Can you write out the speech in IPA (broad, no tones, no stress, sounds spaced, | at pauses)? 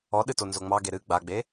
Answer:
ɔ ɗ ɨ t o n z o ŋ͡m ɑ ɡ e ɾ ɨ ɡ͡b a ɡ͡b e